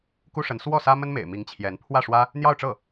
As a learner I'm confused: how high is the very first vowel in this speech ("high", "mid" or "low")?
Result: high